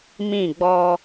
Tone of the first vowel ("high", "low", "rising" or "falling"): falling